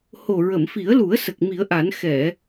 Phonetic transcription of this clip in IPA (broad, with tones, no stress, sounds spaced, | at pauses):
h o˨˩ ɹ ə˨˩˨ m f i˨˩˦ ə̯ l u˨˩˦ ə̯ s ə˨˩ k̚ m i˨˩˦ ə̯ ʔ a˨˩˦ n x ɛ˨˩˨